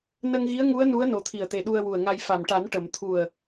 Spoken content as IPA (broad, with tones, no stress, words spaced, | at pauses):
nə˧ŋɣi˧˥ə̯ŋu˧˥ə̯ nu˧˥ə̯no˨˩t̪ʰi˨˩ə̯t̪e˨˩ ɗu˧ə̯wu˨˩ə̯ŋa˧j fa˨˩mʈa˨˩˦n ʈə˨˩˨m t̪ʰu˨˩ə̯